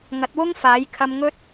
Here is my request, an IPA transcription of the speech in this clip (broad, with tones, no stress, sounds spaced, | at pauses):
ŋ ɐ˨˥ t̚ w ʊ˥ ŋ f aː˨˥ j kʰ ɐ˧ m ŋ ɵ˥ t̚